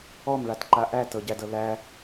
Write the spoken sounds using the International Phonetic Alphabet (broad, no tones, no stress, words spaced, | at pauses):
ɔmɭatǃa ʔætɤɟædɤ læ